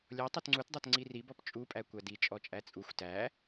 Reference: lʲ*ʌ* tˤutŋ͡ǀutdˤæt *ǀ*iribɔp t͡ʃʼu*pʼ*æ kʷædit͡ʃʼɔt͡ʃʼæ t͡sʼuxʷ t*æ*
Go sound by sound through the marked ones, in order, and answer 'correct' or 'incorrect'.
incorrect, incorrect, correct, correct

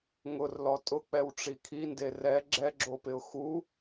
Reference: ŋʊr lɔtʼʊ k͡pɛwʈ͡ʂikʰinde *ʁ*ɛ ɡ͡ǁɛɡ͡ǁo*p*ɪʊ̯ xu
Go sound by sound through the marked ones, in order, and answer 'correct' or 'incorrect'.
incorrect, correct

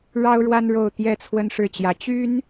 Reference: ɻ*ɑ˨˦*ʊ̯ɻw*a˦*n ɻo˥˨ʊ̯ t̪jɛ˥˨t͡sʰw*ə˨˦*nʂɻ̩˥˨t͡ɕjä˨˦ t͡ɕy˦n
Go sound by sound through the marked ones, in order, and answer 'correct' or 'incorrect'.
incorrect, correct, incorrect

